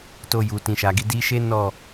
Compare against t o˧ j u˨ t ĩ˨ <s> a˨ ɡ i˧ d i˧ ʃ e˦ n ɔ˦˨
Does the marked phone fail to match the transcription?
yes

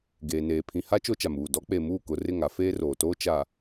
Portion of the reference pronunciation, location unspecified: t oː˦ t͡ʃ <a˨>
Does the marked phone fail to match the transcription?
no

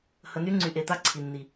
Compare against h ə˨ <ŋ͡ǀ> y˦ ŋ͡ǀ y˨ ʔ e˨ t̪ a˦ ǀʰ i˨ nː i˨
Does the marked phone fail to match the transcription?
yes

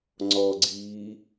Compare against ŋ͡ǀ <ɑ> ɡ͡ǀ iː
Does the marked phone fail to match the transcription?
yes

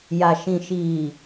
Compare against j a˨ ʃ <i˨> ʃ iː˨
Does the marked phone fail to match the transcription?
yes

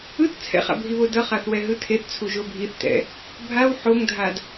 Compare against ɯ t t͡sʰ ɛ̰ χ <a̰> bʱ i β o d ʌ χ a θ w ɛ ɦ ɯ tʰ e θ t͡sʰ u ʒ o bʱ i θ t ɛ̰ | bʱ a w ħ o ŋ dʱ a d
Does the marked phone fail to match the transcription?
no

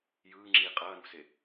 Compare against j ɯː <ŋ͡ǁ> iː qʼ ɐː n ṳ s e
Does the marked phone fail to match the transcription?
no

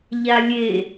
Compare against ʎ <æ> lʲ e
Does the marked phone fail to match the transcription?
yes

